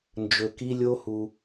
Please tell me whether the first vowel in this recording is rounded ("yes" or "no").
yes